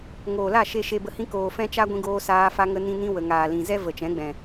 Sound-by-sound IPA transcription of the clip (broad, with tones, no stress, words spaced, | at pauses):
ŋoː˨la˦˨ ʃe˧ ʃe˧bə˧hĩ˦ koː˨ fɛ̃˦t͡ʃa˦ɡʷĩ˧ ɡoː˧saː˧ fa˧ŋə˧nĩ˧nĩ˧ wə˨ŋaː˨lĩ˨ zɛ˦və˨ t͡ʃɛ̃˨˦ɡ͡bɛ̃˨